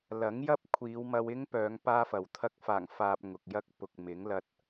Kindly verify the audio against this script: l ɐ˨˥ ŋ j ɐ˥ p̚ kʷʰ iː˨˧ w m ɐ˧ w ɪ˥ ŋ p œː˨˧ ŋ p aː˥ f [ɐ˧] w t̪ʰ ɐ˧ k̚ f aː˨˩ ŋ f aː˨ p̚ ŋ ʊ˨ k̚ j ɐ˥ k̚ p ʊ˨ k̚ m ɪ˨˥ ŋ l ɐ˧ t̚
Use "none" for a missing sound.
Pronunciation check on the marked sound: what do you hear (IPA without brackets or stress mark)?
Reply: ɐ˨